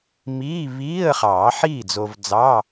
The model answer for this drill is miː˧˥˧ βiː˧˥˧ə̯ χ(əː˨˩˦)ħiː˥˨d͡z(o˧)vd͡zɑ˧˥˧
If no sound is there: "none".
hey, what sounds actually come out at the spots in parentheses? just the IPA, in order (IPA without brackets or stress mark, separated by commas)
ɑː˨˩˦, o˧